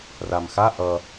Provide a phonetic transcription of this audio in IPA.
ramxa ʔʌ

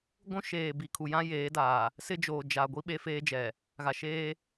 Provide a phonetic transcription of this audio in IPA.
ɡʷũ˦ʃeː˨ bi˨kʰu˨jã˦ jeː˨˦daː˨ | sɪ˦d͡ʒoː˨d͡ʒa˨ɡʷi˦ ɓe˦feː˦d͡ʒɛ˨ | ɣa˨ʃeː˦

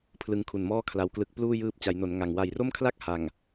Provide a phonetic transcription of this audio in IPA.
pʰlɯ˧ŋkʰu˨˩nmɔː˥˩ kʰla˧wklɯ˦˥k̚ pluː˥˩jɯː˦˥p̚ t͡ɕa˩˦jno˩˦n ŋa˨˩ŋ wa˨˩jro˥˩mkʰla˥˩k̚ ha˨˩ŋ

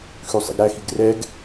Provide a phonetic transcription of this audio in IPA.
xʉsˤḭɡɾæxiɡ rɛɡ

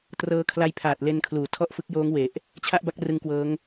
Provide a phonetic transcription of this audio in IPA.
trɤː˦˥kʰla˦˥jpʰaː˨˩t̚ le˧nkʰluː˩˦tʰɔ˥˩ʔfɯ˦˥k̚ joː˦˥ŋwe˨˩ʔ | t͡ɕʰa˥˩ʔba˥˩k̚ rɯ˦˥ŋkwɤː˦˥ŋ

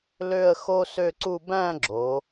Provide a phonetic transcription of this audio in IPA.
lø˥˧ə̯xo˥ sø˥˧ǀu˥˧ bæ̃˥˧ɡ͡ǁo˩˧

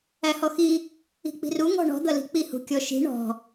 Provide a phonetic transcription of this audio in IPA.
æhɔxi | i̤k͡pi̤ru ŋɔ̤ɳɔ̤ d̪ʌli̤k͡pi hṳkʲɔʃi̤ ɳɔ̤

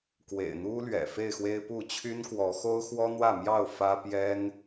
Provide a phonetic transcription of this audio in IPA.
kwḛ˨˩ɪ̯n̪u˦lɥɛ̰˨˩ fe˥˨ɪ̯xwe˦ɪ̯pu˥˨ t͡ɕʰy˦nkwɔ˨˦xo˦ʊ̯xwɔ˦ n̪wä˥˨mjɑ˥˨ʊ̯ fä˦pjɛ˦n

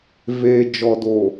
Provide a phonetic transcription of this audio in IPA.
veː˨d͡ʒɔ˨do˨

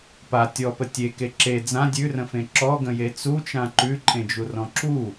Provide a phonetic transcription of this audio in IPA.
pa tʲɔpə tʲeke ǁe d͡zã dʲʉrə̃fẽ ǁɔɡə̃je t͡sut͡ʃã ǃʉǃʼẽd͡ʒurɔ̃ ǁu

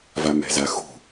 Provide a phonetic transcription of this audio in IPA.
vamɛ̤zaxṳ

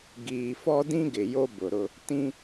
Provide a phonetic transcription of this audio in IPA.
ɡiː˨fɔ˦dĩ˦ɡɪ˨ jo˦bʊ˨ɾʊ˦ | tĩ˦

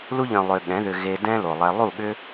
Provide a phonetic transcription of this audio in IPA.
lu˧ʎœ̃˨ lˠʏ˧ɠɛ̃˨˦ðʏ˧ ɣe˧ dɛ̃˦lo˨lˠɛ˧ lˠu˦˨ɠʏ˦

